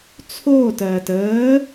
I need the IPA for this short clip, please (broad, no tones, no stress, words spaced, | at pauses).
t͡sʰoːtɜːt əː